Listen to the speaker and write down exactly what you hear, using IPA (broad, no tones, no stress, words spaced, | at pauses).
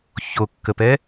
çokːəpɛ